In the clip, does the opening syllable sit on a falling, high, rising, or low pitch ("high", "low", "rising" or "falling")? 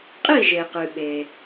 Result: falling